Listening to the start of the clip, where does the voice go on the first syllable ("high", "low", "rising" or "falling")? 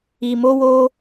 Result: low